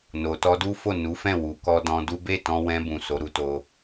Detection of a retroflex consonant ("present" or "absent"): absent